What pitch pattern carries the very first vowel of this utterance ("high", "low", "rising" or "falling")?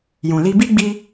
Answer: low